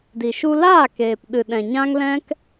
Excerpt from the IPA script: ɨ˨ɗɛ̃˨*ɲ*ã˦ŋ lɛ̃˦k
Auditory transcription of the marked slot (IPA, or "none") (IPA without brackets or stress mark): ɲ